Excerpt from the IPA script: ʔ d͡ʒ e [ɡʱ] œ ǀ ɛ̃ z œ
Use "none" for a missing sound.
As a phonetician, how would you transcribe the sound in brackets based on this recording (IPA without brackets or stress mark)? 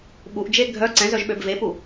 ɡʱ